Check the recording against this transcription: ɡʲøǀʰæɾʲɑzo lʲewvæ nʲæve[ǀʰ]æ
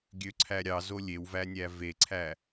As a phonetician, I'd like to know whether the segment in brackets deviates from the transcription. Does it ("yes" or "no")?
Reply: no